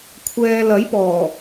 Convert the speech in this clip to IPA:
kʷʰɛː˨ lɐ˨˥jpɔː˨˩

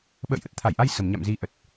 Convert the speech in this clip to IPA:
ɓə̰ː˧˨jʔə˦˥t̚t̪ʰa˧˩jʔa˧j sə˨˩mɲa̰˧˨m zi˨˦ ʔə˨˩t̚

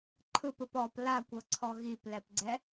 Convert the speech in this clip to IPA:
ǃʰɯpɯp ɔp lakʷɤǀʰɔ ɣiplɛpɡ͡ǀɛ

